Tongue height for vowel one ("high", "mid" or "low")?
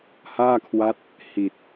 low